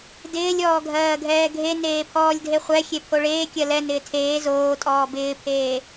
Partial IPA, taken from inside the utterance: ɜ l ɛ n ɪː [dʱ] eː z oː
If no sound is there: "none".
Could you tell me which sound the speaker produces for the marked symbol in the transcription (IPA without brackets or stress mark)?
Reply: tʰ